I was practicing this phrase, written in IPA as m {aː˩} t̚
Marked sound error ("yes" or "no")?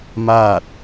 yes